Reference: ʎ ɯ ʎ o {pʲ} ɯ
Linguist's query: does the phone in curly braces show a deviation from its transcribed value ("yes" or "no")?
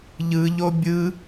yes